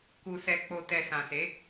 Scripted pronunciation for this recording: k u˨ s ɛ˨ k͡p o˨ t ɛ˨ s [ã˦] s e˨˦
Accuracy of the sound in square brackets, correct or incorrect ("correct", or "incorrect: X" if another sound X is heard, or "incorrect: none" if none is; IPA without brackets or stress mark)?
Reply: incorrect: ã˨